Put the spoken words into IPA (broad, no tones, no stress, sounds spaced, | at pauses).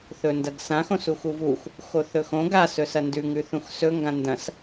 θ ɵ n d ɐ ɡ s ã x õ s u x u v u x | x o θ ɵ x õ ɡ a s ɵ s ɐ n d ʉ ŋ ʉ θ ũ x s ɵ ŋ ɡ ã n d ɐ̃ s